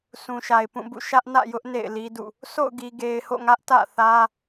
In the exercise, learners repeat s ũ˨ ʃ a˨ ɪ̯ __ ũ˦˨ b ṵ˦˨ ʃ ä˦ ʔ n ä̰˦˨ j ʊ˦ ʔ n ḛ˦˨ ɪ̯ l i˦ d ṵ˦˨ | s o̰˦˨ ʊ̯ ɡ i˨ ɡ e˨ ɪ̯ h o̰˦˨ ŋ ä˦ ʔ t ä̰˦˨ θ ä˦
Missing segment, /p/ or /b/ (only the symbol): p